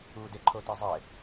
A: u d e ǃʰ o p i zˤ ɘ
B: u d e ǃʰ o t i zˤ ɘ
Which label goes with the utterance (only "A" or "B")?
B